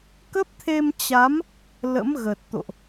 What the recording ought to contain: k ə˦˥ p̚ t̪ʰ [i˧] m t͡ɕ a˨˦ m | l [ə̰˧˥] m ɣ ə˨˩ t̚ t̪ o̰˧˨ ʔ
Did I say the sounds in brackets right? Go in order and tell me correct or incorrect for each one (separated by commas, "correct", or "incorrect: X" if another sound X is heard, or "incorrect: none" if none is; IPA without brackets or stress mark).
incorrect: e˧, correct